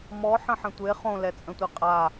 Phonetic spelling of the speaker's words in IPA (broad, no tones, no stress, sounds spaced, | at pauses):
m ɔ ħ ə̃ ħ ə̃ tʷ e χ õ l ɛ t͡sʼ ə̃ tʷ i qʼ a